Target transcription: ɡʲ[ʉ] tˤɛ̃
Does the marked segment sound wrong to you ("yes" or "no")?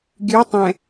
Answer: no